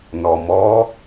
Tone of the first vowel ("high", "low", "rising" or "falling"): low